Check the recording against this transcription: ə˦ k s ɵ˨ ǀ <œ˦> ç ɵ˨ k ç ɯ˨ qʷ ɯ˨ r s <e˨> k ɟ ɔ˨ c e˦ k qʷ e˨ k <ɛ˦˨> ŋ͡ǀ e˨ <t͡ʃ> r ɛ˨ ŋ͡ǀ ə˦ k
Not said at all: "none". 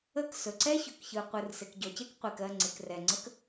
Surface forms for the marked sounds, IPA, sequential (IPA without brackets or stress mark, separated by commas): ɛ˦, e˨, ɜ˦˨, k